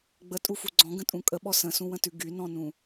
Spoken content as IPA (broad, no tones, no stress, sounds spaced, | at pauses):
ɡ͡b ə tʼ u f u ɡ͡ǀ ɔ̃ ɡ ə̃ tʼ ũ kʼ ə ɓ ɔ s ə̃ s ũ w ə̃ t ʉ ɡ y n ɔ̃ n ũ